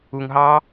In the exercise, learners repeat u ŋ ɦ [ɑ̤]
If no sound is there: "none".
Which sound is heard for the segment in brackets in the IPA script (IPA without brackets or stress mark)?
ɑ